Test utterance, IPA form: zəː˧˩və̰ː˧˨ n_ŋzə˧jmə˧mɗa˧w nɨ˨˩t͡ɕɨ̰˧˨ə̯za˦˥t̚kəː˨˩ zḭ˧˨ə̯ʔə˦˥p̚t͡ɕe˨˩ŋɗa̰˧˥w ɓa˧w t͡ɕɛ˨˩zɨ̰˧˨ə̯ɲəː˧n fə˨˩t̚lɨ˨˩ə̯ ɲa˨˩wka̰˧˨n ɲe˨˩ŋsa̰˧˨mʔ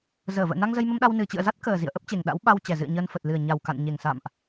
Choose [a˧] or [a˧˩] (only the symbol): a˧